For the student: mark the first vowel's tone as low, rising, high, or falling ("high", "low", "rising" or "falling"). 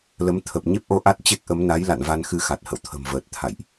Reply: rising